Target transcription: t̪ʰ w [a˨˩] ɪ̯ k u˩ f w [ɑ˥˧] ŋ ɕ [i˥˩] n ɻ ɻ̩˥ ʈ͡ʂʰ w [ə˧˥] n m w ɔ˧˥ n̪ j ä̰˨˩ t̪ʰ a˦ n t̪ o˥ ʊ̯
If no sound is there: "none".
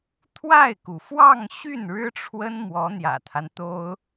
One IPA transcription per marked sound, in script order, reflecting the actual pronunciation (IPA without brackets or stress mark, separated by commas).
a˥˩, ɑ˥˧, y˥˩, ə˥